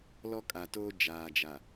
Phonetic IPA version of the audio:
l ɔ˦ kʼ a˨ t oː˦ d͡ʒ aː˨ d͡ʒ a˨

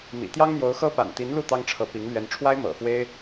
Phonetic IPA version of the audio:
m ḭ˨˩ t̪ j ɑ˥ ŋ n̪ j o˧˥ ʊ̯ x ɤ˥ p a̰˨˩ n t̪ i˧˥ n l u˥˩ t̪ ɑ˥ ŋ ʈ͡ʂʰ ɤ˧˥ p i˧˥ ŋ l ɥ ɛ˥ n ʈ͡ʂʰ w a˥ ɪ̯ m ɤ̰˨˩ f w e˥ ɪ̯

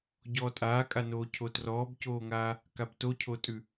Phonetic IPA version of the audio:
ɟ ɔː tʼ aː kʼ a n oː cʰ o t r ɔː b c oː ŋ aː | k a b t o cʰ o tʼ ʉ

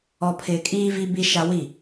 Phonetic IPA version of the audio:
ɔ˨ pʰ ɪ˨ kʼ iː˦ v i˦ b i˦ ʃ a˦ w i˦˨

